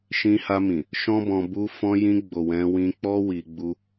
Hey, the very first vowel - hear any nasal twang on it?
yes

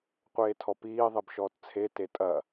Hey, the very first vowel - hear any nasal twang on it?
no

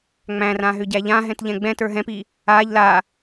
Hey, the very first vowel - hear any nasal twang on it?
yes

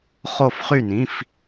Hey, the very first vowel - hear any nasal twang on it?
no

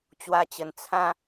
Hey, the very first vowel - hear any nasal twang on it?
no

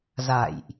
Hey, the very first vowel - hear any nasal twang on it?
no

